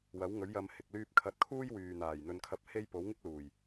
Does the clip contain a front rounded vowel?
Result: yes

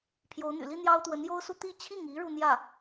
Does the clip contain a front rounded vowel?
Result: yes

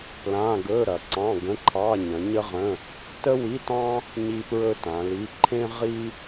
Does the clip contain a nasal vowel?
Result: yes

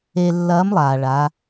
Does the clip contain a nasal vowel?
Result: no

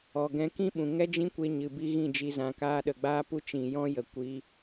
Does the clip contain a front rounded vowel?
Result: no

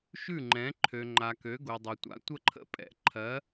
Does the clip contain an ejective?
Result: yes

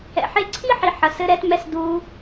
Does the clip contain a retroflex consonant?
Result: no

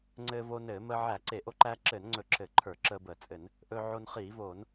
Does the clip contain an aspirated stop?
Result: yes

